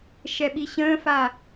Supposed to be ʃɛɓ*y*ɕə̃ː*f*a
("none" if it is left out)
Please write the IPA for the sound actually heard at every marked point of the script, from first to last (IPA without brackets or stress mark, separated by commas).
i, f